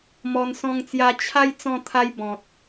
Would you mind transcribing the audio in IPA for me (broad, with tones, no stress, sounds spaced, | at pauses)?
m ɔ˧ n s ɔ̃˦ ŋ t͡s j a˦ t͡ɕʰ a˦ j t͡s ɔ̃˧ t̪ʰ a˦ j b ɔ̃˨ t̚